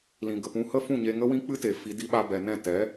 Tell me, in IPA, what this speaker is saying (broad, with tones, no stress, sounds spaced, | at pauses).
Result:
l ĩ˨ ɡ ə˨ p ũ˧ h ə˦ f ũ˦˨ ɲ e˧ ŋ ə˦ w ĩ˦ k͡p ɨ˦ t e˨ f i˧ d i˦ ɓ a˧ b ɛ˨ n ɛ̃˦˨ t ɛ˨˦